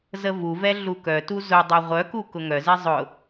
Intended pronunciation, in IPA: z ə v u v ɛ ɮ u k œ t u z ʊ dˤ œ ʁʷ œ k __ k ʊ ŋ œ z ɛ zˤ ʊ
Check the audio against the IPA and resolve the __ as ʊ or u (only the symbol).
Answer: u